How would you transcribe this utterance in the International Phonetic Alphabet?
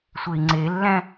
sʷ e i̯ ŋ͡ǀ e lː æ̃

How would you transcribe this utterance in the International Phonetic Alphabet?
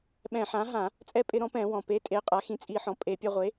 ɓ ɛ̃˧˩˧ ħ ã˩˥ ɦ ã˧˩˧ | t͡sʼ ɛ˧ pʼ ɪ˧˩˧ ɾ ɔ̃˩˥ p ɛ̃˧˩˧ w ɔ̃˩ p e˩˥ tʼ e˩˥ qʼ a˩˥ x ĩ˩˥ t͡sʼ i˧˩˧ ħ ɔ̃˩ pʼ e˧˩˧ pʲ ɛ˧ ʁʷ e˩˥

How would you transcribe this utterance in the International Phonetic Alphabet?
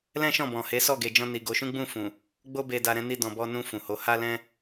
l ɛ̃˦ ʃ ɔ̃˦˨ b ɔ̃˨ h e˨˦ s ɔ˦˨ ɡ e˨ d͡ʒ ɔ̃˧ n i˨ ɡ o˨˦ ʃ ũ˦ ɡ͡b ũ˦˨ f ũ˨ | ɡ͡b o˦ b e˧ d a˧ ɾ ɛ̃˧ n i˧ d ɔ̃˨ b ɔ˧ n ũ˧ f ũ˨ h o˨˦ h a˦ l ɛ̃˦

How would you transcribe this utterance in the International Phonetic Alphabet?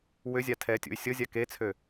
w ʏ zʲ a tʰ ɛ tʲ ṵ y̯ sʲ ɤ zʲ a k e t͡sʰ ø

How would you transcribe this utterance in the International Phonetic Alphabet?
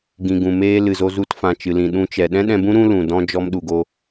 ɡ ĩ˨ ɡ ũ˨ m eː˧ l ɨ˨ z o˧ z u˧ t f ã˨ t͡ʃ ɨ˨ l ĩ˨ ɗ ũ˧ t͡ʃ ɛ˨ ɗ ɛ̃˦ ɗ ɛ̃˧ b ũ˦ ɾ ũ˦ l ũ˨ d ɔ̃˦ d͡ʒ ɔ˧ m ɗ u˨ ɡ o˧

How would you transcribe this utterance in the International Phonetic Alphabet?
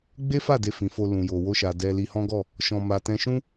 ɡ͡b e˦ f a˦˨ d e˧ f ĩ˨ f o˧ l ũ˨ j o˨ w o˧ ʃ a˨ d ɛ˧ l i˧ h ɔ̃˦ ɡ ɔ˦˨ | ʃ ɔ̃˧ m a˧ t ɛ̃˧ ʃ ũ˦

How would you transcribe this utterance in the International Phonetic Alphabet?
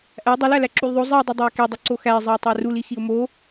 ʔ æ dˤ u l æ l æ ǁ u l ðˤ o zˤ i ʊ̯ dˤ i dˤ æ ɪ̯ k e dˤ i ǀ o x æ ɪ̯ zˤ e ʊ̯ tˤ æ r u l i x i ʊ̯ m o

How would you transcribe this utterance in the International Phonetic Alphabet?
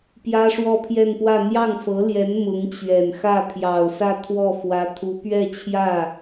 p j ä˥ ʂ w ɔ˥˧ pʰ j ɛ˥˧ n p w ä˥˧ n̪ j ɑ˥˩ ŋ f ɤ˧˥ l j ɛ˧˥ n m ʊ˧˥ ŋ t͡ɕ ɥ ɛ˨˩ n x ä˥˩ pʰ j ɑ˨˩ ʊ̯ s ä˥˧ t̪ʰ w ɔ˥˩ f w ä˧˥ t̪ʰ u˧˥ p ɥ ɛ˥˧ t͡ɕʰ j ä˥˩

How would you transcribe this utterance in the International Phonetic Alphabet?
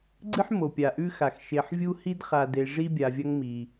ɡ͡ǀ ɨ˦ ħ m o˩ pʲ a˩ ʔ ʉ˦ x a˩ x ʃ e˨ ħ vʲ u˥ h i˥ d χ a˨ d e˨ ʐ i˥ bʲ a˨ vʲ ɐ˦ ŋ m i˩

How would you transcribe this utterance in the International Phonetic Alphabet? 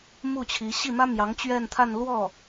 m u˥˩ t͡ɕʰ i˧˥ ɕ i˥˩ m ä˥ m j ɑ˧˥ ŋ t͡ɕ ɥ ɛ˥˧ n t̪ʰ a˥˧ n l w ɔ˥˩

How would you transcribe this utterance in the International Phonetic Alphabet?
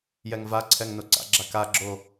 j ɛ ŋ v a ǀʰ ɛ ŋ n o ǀ a̰ ɡ͡ǁ a k a ɡ͡ǁ o

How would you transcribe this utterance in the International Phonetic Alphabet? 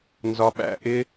n z ɒ˧ ɓ æ̰˧ ʔ ɪ˦

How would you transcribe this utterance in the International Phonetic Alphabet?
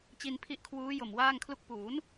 t͡ɕ i˧ n pʰ i˦˥ ʔ kʰ w uː˦˥ j o˨˩ m w aː˥˩ ŋ kʰ l u˥˩ k̚ p uː˩˦ n

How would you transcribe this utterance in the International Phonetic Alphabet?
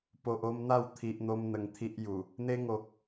p o˨ ʔ o˧ m n̪ a˥˧ w t̪ʰ i˨ ʔ n̪ o˧ m n̪ ə˧ ŋ t̪ʰ i˦ ʔ j u˨˩ | n̪ e˦ ŋ o˨ k̚

